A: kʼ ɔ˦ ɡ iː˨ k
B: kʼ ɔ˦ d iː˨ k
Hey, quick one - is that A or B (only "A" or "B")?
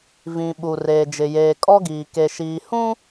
A